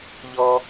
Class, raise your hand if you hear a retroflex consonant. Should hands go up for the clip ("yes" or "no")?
no